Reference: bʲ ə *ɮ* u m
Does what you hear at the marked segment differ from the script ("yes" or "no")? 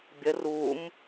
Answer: yes